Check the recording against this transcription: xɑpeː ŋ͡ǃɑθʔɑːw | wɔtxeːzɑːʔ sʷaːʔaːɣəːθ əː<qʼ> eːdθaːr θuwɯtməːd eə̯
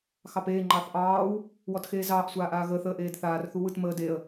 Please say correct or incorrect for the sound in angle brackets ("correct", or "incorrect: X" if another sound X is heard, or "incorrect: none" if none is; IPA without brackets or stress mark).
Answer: incorrect: ʔ